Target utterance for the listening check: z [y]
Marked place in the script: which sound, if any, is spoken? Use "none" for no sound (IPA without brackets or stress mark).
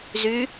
y